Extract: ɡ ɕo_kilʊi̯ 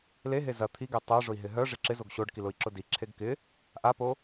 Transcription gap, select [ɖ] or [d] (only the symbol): ɖ